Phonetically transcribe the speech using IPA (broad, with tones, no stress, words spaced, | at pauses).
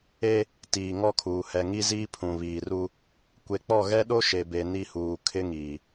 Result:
e˦ | tiː˨ŋɔ˦kʰuː˨ hɛ˨ŋi˦ziː˦ pʰũ˨βiː˨ru˦ | kʷe˨˦k͡pɔ˦˨ ɣɛ˦ɗo˦ ʃe˨be˨ ni˦huː˨ kʰɪ˦ŋiː˨